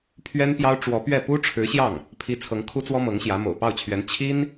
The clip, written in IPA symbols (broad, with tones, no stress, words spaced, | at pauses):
pʰɥɛ˥npjɑ˥ʊ̯ ʈ͡ʂwɔ˧˥pɥɛ˥˩ pu˥ʈ͡ʂʰɻ̩˧˥ɕjɑ˥˩ŋ | pʰi˥ t͡sʰɤ˧˥ŋ kʰu˥t͡swɔ˥ mɤ˧˥ŋɕjä˧˥ mo̰˨˩ʊ̯ pɑ˥˩ʊ̯t͡ɕʰɥɛ˧˥n t͡ɕʰi˥n